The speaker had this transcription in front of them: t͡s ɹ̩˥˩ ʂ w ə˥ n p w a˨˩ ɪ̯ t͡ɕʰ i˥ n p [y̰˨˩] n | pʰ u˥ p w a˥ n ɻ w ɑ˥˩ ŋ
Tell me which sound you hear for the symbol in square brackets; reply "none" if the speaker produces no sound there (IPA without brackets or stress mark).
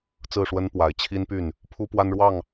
y˥˩